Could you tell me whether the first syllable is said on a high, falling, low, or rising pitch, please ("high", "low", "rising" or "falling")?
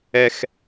high